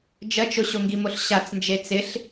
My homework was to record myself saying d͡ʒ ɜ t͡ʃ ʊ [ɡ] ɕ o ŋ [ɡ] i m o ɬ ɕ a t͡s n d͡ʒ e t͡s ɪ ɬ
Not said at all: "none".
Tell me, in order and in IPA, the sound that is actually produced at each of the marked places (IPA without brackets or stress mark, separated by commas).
none, ɡ